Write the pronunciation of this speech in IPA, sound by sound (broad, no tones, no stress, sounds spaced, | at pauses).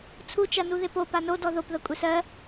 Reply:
t͡sʰ u t͡ʃ ɐ n u ð ɪ p o p a n o d ɔ ð o p ð ɐ kʷʼ e s ɜ